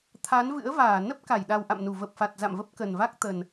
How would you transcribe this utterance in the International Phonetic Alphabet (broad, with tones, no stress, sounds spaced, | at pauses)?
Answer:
t̪ʰ a˨˦ n v ɨ̰˧˥ ə̯ v aː˧˩ n ə˦˥ p̚ k a˧˩ j ɗ a˨˩ w ʔ a̰˧˨ m n u˧˩ v ə˨˩ p̚ f a˨˩ t̚ z a̰˧˨ m v ə˦˥ p̚ k ə˨˩ n v a˦˥ k̚ t̪ ə˨˩ n